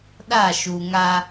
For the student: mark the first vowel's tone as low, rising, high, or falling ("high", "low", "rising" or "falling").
falling